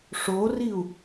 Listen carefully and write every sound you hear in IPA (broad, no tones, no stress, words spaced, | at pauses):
ʂoriu̯